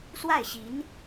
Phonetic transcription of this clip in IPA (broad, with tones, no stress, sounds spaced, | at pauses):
s w a˥˩ ɪ̯ ɕ i˧˥ n